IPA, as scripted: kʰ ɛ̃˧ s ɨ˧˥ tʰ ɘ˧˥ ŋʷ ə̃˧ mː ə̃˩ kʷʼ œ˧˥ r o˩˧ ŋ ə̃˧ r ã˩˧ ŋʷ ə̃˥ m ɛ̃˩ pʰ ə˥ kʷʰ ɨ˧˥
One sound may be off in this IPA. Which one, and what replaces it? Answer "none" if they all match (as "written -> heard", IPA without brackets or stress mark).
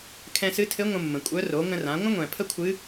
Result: m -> ŋʷ